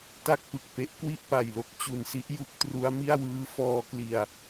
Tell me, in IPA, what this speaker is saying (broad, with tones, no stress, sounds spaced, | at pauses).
t a˥˩ k̚ p ɯ˨˩ k̚ p e˦˥ ʔ k w i˥˩ ʔ p a˨˩ j l o˦˥ k̚ t͡ɕ u˨˩ n s i˦˥ ʔ j u˦˥ k̚ t r u˦˥ a̯ m i˥˩ a̯ w ɯː˦˥ f ɔː˧ k l i˨˩ a̯